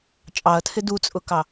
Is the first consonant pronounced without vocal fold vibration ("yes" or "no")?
yes